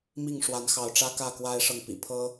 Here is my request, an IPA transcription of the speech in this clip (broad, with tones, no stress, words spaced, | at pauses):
mi˥˨ŋʂwa˨˦nxɑ˨˦ʊ̯ʈ͡ʂä˦ kä˥˨kwa˦ɪ̯ʂɤ˨ŋ pḭ˨˩pʰɤ˦